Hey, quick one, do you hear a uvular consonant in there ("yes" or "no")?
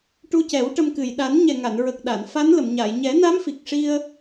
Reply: no